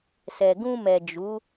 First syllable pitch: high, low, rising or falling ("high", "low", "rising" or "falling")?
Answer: low